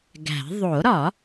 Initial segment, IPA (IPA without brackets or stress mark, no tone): ɡ